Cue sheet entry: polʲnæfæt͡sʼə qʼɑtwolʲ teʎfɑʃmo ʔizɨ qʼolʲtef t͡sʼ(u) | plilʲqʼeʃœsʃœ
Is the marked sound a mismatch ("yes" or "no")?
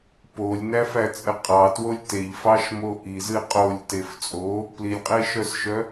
yes